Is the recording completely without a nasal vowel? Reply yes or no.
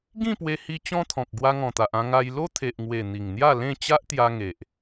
no